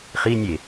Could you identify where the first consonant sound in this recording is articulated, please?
uvular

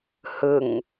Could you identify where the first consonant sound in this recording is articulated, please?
glottal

